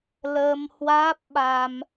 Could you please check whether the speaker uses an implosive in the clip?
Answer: yes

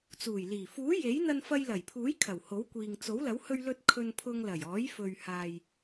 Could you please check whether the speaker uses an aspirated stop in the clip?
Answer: yes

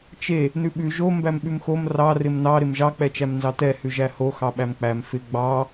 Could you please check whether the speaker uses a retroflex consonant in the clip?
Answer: no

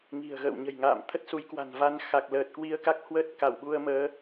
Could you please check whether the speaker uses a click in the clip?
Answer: no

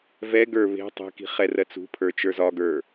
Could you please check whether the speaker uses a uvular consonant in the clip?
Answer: yes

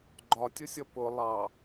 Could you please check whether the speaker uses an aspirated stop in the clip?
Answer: no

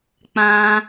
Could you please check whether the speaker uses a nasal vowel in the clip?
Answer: yes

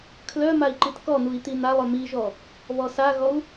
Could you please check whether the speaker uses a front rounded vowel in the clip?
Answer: yes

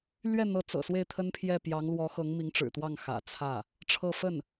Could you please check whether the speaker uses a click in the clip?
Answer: no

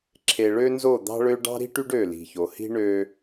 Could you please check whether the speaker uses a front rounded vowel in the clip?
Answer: yes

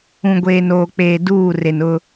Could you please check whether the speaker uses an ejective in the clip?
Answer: no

